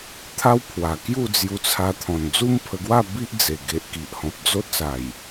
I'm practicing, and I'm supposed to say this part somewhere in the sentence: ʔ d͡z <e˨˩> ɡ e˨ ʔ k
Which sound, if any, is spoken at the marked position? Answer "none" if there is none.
e˨˩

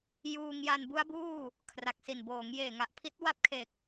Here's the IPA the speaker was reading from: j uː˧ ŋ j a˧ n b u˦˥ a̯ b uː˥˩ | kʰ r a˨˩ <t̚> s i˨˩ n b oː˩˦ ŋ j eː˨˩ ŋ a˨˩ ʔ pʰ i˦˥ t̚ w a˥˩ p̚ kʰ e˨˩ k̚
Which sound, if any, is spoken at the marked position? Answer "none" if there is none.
k̚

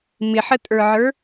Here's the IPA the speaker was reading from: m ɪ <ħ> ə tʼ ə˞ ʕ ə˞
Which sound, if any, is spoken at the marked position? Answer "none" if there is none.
ħ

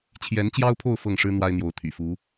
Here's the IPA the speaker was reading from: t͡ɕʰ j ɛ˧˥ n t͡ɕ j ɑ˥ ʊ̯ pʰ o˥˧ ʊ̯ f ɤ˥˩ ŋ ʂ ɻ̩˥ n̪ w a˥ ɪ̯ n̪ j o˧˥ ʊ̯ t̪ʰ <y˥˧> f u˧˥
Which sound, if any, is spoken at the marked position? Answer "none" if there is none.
y̰˨˩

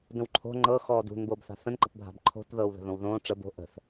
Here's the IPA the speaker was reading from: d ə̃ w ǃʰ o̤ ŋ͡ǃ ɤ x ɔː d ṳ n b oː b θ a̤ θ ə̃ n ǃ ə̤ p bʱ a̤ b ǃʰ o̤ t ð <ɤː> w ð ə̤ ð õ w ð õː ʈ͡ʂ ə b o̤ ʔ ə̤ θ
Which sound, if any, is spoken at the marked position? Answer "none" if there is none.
ɤː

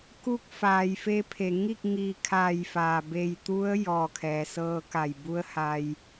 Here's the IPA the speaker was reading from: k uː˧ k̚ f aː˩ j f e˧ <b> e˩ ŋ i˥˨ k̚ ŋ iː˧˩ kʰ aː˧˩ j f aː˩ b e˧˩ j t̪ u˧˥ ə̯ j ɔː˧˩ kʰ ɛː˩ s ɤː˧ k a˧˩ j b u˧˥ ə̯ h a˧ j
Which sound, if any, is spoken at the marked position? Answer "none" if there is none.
pʰ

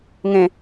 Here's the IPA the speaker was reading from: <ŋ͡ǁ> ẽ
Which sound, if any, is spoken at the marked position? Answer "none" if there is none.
ŋ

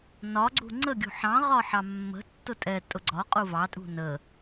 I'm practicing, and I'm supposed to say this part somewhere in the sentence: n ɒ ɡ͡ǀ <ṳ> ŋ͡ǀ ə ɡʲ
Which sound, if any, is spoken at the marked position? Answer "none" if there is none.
ṳ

